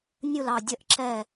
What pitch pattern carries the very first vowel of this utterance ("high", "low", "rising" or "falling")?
falling